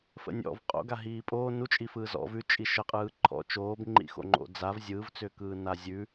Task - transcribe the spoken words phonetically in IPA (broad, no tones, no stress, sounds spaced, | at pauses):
f ə̰ nʲ ɔ̰ v qʼ o̰ ɡ a ɦ iː pʼ oː n u t͡ʃʼ i f ɯː z ɔ̰ v ʉ t͡ʃʼ i ʃ ə qʼ ɯː ǃʰ ɔ̰ t͡ʃ oː b ŋ͡ǃ ḭ x o̰ ŋ͡ǃ o̰ d͡z a v zʲ ɯː v t͡s ʏː k ɯː n a zʲ ʉ